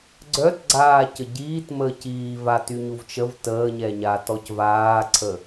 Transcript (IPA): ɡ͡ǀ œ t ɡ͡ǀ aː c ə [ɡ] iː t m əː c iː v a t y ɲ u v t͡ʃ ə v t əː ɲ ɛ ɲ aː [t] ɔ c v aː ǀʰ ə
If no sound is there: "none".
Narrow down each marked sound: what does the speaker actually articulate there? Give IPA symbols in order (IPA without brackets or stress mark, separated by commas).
ɟ, t